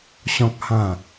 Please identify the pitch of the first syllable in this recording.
low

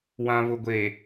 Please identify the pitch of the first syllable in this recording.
low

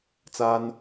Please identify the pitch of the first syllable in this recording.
high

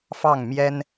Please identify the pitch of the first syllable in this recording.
falling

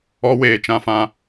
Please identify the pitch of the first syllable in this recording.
high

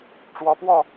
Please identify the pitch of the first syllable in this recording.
rising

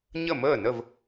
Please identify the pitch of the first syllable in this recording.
falling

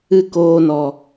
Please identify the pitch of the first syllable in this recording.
falling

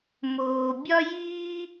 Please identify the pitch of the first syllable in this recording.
low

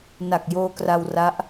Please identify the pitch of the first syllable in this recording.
low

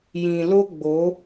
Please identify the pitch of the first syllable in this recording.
low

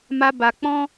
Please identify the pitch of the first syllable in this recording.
high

